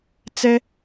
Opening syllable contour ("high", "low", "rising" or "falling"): high